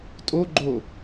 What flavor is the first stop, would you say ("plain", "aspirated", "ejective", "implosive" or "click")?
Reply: ejective